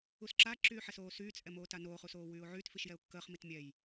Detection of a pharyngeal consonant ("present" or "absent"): present